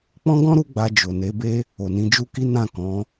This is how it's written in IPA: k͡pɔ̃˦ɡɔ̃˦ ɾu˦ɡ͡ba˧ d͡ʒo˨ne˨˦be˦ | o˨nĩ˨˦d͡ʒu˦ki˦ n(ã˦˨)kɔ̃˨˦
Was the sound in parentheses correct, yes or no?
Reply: yes